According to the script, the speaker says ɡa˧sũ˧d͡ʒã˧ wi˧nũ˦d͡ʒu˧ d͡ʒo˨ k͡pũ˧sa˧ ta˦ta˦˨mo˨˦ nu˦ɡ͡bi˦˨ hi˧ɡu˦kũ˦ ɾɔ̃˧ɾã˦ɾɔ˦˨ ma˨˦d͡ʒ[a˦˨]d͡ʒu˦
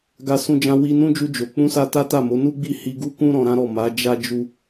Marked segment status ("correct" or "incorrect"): incorrect